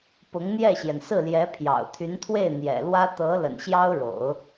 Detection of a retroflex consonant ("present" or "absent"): present